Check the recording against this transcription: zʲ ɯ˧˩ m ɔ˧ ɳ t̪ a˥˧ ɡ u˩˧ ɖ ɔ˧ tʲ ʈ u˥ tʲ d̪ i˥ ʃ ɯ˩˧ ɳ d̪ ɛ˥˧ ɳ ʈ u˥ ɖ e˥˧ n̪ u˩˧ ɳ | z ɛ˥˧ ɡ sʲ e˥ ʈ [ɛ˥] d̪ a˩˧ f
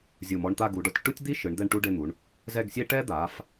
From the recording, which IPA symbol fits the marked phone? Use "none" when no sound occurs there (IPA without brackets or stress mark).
ɛ˥